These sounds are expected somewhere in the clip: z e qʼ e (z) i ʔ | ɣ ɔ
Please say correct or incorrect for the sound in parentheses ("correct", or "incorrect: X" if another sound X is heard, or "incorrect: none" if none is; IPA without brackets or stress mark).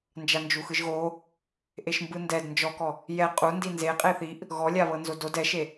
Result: incorrect: θ